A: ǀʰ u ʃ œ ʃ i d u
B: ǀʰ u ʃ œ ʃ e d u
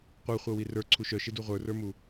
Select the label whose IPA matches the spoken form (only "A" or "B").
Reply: B